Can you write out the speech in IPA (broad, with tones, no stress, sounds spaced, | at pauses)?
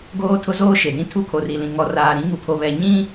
ɡ oː˦ tʰ ʊ˦ z oː˦ ʃ e˨ d ĩ˦ tʰ u˦˨ kʰ o˨ r i˨ l ĩ˨ ŋ ɔ˨ r aː˨ ɾ ĩ˨˦ ŋ u˨ pʰ o˨ β ɛ˨ ɲ ĩ˦